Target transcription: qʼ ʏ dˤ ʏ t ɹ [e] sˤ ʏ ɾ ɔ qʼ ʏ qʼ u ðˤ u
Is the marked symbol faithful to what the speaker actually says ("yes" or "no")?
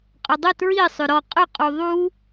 no